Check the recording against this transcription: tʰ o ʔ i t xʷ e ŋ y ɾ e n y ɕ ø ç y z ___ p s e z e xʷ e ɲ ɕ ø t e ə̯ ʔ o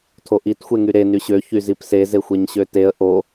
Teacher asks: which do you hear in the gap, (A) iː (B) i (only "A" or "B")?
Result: B